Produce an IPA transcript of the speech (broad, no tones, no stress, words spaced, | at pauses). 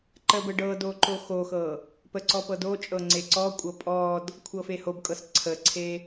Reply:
ǃəbə ɖɤdo ǃoxoxɤ | pəǀɔ pɤdot͡ʃʼɤ ŋ͡ǀeǀɔkʷʼɤ pʼɔd | kʷʰɤfehobkʼɤs ǀʰəǀʰe